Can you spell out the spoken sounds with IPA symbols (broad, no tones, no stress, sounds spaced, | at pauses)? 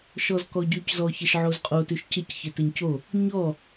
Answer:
ʃ ɔ z k ɔ ɟ ʉ c z ɔ ç ɘ ʃ ʕ o z qʼ o t ʉ ʃ c ɘ c ç ɘ t ɘ ɲ c o | ɲ ɔ